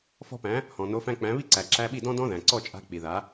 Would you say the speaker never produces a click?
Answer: no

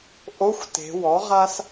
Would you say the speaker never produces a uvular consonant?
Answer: no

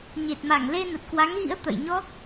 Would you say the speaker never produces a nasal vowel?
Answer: yes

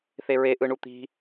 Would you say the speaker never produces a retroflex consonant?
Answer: no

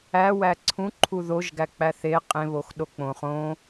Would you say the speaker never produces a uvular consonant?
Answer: no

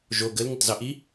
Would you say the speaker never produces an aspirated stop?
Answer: yes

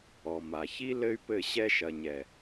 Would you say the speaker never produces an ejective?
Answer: yes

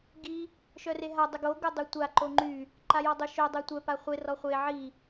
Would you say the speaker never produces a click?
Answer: no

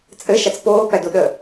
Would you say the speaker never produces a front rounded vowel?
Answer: yes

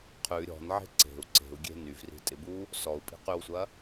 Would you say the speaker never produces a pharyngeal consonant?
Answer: no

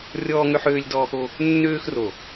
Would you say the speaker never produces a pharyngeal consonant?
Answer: no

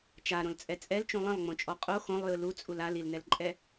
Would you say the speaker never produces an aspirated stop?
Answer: yes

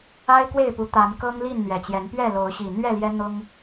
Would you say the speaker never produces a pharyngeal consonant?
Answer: yes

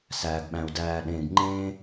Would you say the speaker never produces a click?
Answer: no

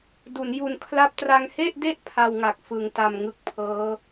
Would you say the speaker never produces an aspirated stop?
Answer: no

